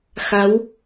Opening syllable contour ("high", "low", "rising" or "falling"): rising